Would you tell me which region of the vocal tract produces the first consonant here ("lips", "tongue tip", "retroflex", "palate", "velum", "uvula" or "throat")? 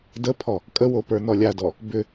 tongue tip